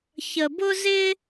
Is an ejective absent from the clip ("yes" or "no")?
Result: yes